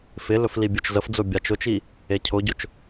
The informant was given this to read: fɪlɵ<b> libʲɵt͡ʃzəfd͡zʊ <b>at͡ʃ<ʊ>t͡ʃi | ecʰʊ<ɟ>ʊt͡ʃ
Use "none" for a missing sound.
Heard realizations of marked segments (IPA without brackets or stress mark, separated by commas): f, bʲ, ʊ, ɟ